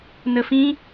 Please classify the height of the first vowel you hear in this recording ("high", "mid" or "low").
mid